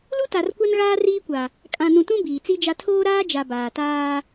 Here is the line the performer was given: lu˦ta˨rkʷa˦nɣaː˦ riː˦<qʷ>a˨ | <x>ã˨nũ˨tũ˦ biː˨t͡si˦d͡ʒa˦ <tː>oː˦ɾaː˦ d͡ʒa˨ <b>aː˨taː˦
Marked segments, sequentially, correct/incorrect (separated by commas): incorrect, incorrect, incorrect, correct